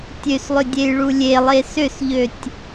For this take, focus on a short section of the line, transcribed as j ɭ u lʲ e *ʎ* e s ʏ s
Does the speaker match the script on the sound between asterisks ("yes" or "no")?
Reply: no